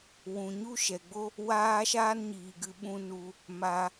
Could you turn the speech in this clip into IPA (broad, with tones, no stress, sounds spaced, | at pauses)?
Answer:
w ũ˨ ɲ u˦ ʃ ɛ˨ ɡ͡b o˦ | w aː˦ ʃ aː˦ n ɲ iː˨ ɡ ɨ˧ ɓ ũ˦ n u˧ | m a˧